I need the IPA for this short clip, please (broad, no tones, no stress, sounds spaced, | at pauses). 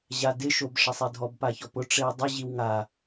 ʑ a d ɪ ʃ o b ʂ ɛ sˤ e dʱ ɔ b p a ç ɔ p ʊ ʈ͡ʂ e w dˤ ɪ ʑ i w ŋ a